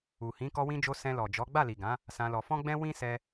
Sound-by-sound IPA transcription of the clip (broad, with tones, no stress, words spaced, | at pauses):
u˨hĩ˨˦ kɔ˧wĩ˧d͡ʒo˧ sɛ̃˧lɔ˨d͡ʒɔ˨˦ ɡ͡ba˦˨li˨ɡã˨˦ | sã˧lɔ˧ fɔ̃˦ɡ͡bɛ̃˦ wĩ˦sɛ˧